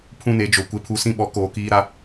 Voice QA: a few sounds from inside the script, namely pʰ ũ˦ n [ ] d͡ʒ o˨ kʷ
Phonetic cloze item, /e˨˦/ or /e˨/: e˨˦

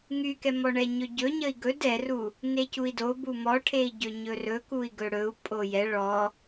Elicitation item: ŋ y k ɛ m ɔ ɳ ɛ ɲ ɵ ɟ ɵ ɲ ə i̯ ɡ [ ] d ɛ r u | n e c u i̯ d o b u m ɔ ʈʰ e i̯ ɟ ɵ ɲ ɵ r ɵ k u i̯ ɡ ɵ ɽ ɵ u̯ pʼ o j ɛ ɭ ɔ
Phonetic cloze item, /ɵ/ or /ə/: ɵ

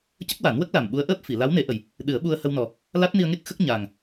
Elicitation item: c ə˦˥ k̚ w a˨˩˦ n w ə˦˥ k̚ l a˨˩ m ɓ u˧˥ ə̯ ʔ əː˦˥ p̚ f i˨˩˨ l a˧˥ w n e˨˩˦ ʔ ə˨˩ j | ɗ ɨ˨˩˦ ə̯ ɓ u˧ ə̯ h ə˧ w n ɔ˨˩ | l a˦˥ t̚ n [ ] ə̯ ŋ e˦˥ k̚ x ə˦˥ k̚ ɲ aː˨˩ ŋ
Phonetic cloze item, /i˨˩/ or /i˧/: i˧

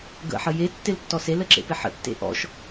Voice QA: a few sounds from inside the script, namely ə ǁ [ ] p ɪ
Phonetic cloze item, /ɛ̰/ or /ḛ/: ḛ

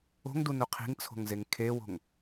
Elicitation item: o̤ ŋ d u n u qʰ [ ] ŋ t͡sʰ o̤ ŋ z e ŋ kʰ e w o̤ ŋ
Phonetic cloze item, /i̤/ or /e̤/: i̤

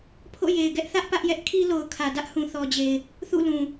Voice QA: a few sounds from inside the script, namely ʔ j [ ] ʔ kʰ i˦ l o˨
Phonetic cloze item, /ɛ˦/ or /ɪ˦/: ɛ˦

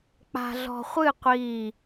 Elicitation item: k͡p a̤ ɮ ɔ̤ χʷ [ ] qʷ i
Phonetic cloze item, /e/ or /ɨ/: ɨ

